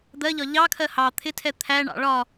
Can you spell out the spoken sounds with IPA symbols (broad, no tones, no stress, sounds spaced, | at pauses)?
d̪ ɜ ʎ ɒ ʎ ɑ kʰ ɜ h ɑ t̪ʰ ɪ tʰ ɛ t̪ʰ æ ɳ ɑ̰ ɭ ɒ